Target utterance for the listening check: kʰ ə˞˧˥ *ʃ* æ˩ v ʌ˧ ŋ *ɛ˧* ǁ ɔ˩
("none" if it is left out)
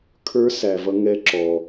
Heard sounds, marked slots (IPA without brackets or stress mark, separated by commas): s, ɛ˧˥